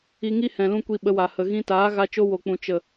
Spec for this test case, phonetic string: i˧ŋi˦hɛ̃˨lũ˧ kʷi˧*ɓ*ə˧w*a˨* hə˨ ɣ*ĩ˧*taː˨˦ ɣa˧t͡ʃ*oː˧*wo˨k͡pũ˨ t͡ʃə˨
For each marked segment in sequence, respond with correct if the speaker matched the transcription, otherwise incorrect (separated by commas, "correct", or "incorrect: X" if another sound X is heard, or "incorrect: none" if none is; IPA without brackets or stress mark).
correct, correct, correct, incorrect: o˧